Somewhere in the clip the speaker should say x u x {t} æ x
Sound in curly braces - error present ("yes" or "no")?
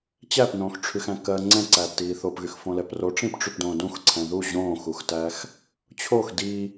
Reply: no